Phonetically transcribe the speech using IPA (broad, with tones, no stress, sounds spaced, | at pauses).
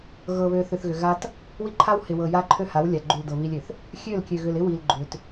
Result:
ɣ ɤ˨ β ø˨ θ ʏ˨ θ ɣ ʏ˨ ɣ a˦ t | w i˦ ǃʰ a˦ w h ɪ˨ w ɤ˨ j a˦ ǃʰ ø˦ h a˨˦ w lʲ a˨ ɡ͡ǃ u˨ l d ɤ˨ β i˦ lʲ ø˨ θ | xʲ ø˦˨ l kʲ ø˨ ɣ ʏ˨ l ɪ˦ w i˨ l ɡ͡ǃ ʏ˨ t